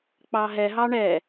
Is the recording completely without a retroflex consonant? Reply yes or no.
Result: no